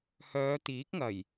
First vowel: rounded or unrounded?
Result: rounded